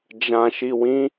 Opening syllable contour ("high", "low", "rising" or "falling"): low